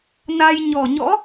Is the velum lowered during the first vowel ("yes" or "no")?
no